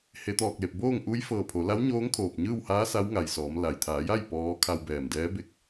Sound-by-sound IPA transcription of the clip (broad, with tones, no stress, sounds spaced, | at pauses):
h e˩˧ t̪ ɔː˧˩ k̚ l e˧˩ p̚ b oː˥˨ ŋ ʔ u˧˥ j f ɤː˧˩ pʰ o˩˧ l a˧˥ w ɲ oː˧˥ ŋ kʰ oː˧˩ p̚ ɲ ɯː˥˨ w h aː˧˥ s a˧˥ w ŋ a˧˩ j s ɔː˩˧ m l a˩ j t̪ʰ aː˩˧ j a˥˨ j p ɔː˧˥ kʰ a˧ w b ɛː˧˩ m d ɛː˧˥ b e˥˨ k̚